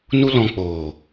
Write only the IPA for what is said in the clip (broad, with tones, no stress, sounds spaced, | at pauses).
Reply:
n u˦ l ɔ̃˧ k͡p oː˨